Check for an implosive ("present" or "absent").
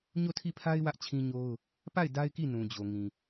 absent